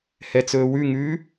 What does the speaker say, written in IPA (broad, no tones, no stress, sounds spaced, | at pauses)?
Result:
h ɛ t͡s ɵː w ʉ ŋ ʉː